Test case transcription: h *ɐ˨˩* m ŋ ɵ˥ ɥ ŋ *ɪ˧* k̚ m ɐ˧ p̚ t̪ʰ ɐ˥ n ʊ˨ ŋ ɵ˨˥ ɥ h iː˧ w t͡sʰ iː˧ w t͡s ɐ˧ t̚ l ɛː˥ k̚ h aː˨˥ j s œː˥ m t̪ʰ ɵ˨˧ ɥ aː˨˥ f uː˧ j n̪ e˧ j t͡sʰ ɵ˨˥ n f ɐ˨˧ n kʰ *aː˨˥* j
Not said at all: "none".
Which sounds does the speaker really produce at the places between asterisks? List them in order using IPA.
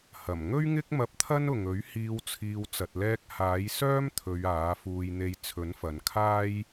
ɐ˨˩, ɪ˥, aː˥

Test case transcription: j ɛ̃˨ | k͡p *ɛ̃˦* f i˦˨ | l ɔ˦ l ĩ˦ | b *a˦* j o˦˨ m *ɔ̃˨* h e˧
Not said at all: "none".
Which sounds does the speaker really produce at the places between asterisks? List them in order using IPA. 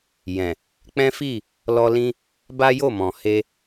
ɛ̃˦, a˦, ɔ̃˨

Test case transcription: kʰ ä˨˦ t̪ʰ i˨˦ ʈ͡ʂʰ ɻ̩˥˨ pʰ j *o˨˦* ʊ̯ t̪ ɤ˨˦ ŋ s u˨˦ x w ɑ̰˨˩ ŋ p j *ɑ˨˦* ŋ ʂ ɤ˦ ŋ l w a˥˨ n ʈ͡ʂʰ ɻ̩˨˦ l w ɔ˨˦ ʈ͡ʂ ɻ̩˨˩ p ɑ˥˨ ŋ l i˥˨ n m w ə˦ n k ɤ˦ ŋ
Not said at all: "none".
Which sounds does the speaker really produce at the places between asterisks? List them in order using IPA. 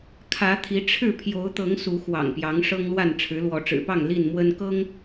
o˨˦, ɑ˨˦

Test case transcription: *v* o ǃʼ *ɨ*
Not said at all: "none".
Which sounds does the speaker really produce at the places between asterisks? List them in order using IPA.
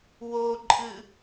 w, ɨ

